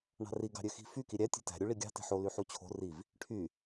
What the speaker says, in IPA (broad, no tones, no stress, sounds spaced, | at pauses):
ɳ ɑ̤ r i ɡ ɑ̤ ɾʲ ø x i̤ f y k i ɾʲ æ tʲ e̤ t æ̤ ɾʲ u ɭ i ɡʲ ɑ̤ t e̤ ħ o l y ħ u t͡ɕʰ o̤ r i v | ʈʰ y